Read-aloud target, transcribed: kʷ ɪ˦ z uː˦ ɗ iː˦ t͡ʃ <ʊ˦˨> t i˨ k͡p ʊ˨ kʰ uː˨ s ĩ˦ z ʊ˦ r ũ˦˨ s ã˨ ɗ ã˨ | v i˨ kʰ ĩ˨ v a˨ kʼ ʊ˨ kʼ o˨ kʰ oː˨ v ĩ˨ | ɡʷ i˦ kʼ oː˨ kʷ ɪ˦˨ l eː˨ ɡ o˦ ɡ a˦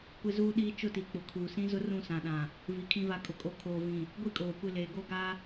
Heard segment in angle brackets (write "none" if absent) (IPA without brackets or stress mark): ʊ˦˨